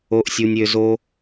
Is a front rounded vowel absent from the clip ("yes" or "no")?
no